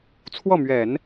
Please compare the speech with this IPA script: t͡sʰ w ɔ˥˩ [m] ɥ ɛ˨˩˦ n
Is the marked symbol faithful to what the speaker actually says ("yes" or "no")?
yes